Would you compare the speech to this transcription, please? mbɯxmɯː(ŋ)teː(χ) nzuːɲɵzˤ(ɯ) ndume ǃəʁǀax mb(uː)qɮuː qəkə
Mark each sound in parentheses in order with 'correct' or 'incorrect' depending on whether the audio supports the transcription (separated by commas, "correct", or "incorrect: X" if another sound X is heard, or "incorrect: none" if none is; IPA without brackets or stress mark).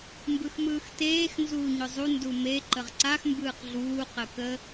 incorrect: x, incorrect: x, incorrect: u, incorrect: ɯː